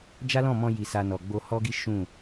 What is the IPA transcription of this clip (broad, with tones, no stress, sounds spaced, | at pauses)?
d͡ʒ a˦ l ɔ̃˦˨ m ɔ̃˧ j i˧ s a˧ n ɔ˨ ɡ͡b o˧ h ɔ˦ ɡ i˦ ʃ ũ˦˨